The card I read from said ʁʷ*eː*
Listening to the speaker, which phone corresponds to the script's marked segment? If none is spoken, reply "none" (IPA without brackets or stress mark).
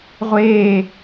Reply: eː